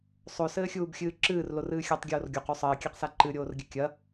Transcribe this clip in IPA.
sˤosɘːxʲuːbxʲɨː ǁɨːrlorɨː xʲatˤɡʲoːr ɡʲoqu sˤɘːkʲɛqsa ǃɨɾʲoːrɡʲɘ kʲɐ

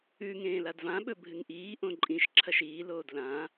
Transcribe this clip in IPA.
ʉ ŋẽːladvãɓɵ bʱɨŋʔiːʔõ ǃʼĩʃǁʰɐʃ iːloːd lã

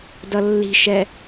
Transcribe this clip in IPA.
dʌlːi̤ʃɛ

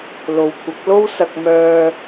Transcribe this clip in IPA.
lo˨˧wkʷʰɐ˨˥k̚lo˥wsɐ˧k̚ mœː˧

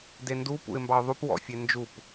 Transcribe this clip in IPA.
dendu pṵɪ̯mbɑʊ̯ðˤup wɔ̰fʲend͡ʒup

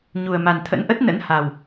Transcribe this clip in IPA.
ɲu˨˩ə̯ma˨˩n t̪ʰə̰˧˥nʔə˦˥t̚nə̰˧˥n ha˨˩w

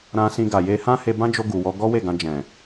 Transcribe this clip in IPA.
ɾã˧sĩ˧ɡa˨je˧ hã˦he˧bã˦d͡ʒo˧ ɡu˨wɔ˧ ɡɔ˦we˦˨ɡã˧ d͡ʒɛ̃˨

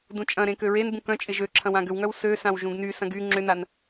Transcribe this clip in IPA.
dũt͡ʃʼɐ̃ɾẽ køɹenbũ kœ̃ t͡ʃʼɪʒøǁʰɐ̃w ãɡʏwŋœw søsãw ʒũɡnysɐ̃ɡ y ŋ͡ǁʏnan

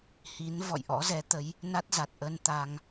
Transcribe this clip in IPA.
hi˨˦n vɔ̰˧˨jʔɔ̰˧˥zɛ˨˦t̪ə˨˦j | na˦˥t̚za˨˩t̚ʔə˧n t̪a˧ŋ

